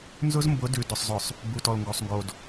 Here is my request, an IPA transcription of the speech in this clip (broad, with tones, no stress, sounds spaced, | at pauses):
n z ʊ˦ z m b ʊ˨˦ d ʉ˨ d ʊ˨ sˤ z ʊ˨ sˤ | b u˨ t ɔ˨ l ŋ ɡ o˨ sˤ ŋ ɡ o˨ d